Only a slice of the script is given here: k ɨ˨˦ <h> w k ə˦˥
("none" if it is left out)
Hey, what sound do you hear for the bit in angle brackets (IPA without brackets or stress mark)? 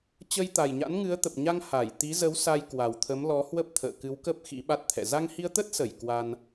none